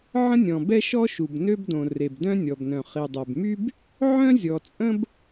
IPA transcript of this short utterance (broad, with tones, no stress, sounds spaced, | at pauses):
ʕ ə̃˥ nʲ ɔ̃˩ b ɛ˥ ʃ ɔ˥ ʃ u˩ b n ø˥ b d õ˩ r e˩ b d œ̃˥ nʲ ɔ˩ b n œ̃˩ χ i˩ dˤ ɛ˩ b m y˥ b | ʕ œ̃˥ zʲ ɔ˩ t͡sʼ ə̃˥ b